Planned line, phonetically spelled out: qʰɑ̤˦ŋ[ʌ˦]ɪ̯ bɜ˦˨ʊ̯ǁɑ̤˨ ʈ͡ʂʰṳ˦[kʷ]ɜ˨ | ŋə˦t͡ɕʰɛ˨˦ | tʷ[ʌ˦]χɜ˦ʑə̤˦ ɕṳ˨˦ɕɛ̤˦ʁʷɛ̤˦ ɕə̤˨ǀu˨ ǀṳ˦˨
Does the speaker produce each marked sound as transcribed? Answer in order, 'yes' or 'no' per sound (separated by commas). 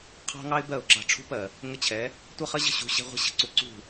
no, no, yes